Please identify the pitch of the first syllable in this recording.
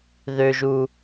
low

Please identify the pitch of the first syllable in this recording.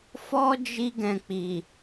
high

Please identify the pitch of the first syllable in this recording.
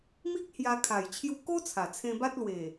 high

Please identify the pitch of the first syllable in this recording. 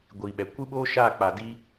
low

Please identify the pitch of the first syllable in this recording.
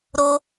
high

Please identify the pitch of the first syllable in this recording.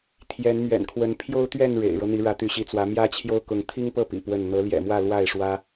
rising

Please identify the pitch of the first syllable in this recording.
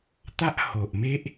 high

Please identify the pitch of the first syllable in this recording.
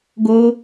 high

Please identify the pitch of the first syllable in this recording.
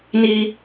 high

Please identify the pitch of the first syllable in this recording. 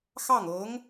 falling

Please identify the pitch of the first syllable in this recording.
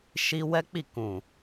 high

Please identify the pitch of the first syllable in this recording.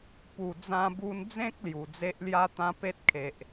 low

